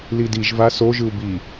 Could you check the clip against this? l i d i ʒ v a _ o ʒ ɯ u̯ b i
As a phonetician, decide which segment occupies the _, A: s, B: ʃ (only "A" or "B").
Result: A